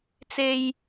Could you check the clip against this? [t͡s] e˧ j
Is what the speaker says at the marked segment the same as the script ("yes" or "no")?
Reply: yes